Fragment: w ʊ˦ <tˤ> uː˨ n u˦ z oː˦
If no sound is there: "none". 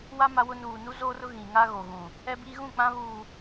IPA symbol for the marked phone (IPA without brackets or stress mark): n